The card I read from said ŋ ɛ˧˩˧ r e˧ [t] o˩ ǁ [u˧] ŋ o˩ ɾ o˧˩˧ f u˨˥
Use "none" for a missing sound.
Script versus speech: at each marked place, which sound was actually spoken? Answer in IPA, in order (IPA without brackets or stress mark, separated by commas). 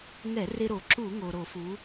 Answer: ɾ, u˧˩˧